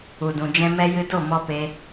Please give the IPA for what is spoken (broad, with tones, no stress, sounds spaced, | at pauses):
u˨ d ũ˨ d͡ʒ ɛ̃˧ m ɛ˧ j ɨ˧ d o˦˨ m ɔ˧ p e˧